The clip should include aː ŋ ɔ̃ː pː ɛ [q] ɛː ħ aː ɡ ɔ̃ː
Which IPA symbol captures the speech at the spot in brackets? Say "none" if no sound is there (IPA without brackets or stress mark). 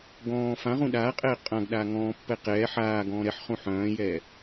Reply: q